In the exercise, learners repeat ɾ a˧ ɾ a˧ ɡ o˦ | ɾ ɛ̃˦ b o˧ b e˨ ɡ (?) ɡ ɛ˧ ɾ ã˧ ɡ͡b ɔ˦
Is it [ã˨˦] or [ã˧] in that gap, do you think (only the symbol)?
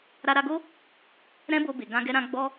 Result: ã˧